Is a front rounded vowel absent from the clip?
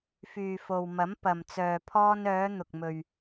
no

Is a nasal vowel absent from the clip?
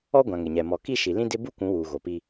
no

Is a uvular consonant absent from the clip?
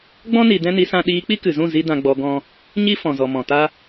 yes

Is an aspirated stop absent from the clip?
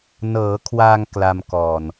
no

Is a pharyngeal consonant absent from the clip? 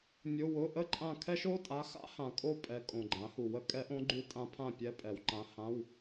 yes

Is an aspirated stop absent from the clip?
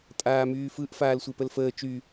yes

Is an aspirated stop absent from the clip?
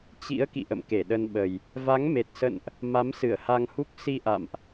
yes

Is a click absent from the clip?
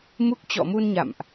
yes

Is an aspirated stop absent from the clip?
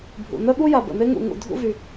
yes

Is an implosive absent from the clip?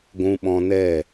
no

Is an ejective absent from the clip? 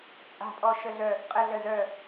no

